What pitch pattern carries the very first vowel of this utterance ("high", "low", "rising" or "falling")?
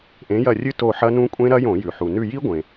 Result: rising